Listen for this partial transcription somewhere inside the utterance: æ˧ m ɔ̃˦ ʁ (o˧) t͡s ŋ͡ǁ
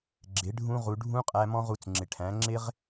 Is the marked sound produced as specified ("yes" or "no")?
no